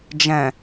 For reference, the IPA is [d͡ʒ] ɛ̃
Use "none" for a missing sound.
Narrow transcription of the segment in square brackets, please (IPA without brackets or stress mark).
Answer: d͡ʒ